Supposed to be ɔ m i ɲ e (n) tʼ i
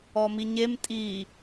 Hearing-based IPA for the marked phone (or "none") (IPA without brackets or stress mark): m